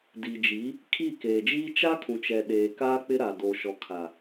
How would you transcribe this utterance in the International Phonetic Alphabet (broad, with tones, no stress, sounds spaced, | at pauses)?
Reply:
d i˨ d͡ʒ i˨˦ | kʰ i˦˨ k eː˨ d͡ʒ iː˦ t͡ʃ a˦ kʰ ũ˨ t͡ʃ ɛ˨ ɗ eː˨ k aː˦ k͡p ɪ˦ ɾ a˨ d o˨ ʃ ɔ˨ kʰ a˨